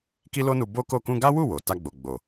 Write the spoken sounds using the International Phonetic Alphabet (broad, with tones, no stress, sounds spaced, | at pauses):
k i˦ l o˦ n u˧ b o˦ k o˦˨ k ũ˧ ɡ a˦ w u˦˨ w o˨ t a˧ ɡ͡b o˨ ɡ͡b o˨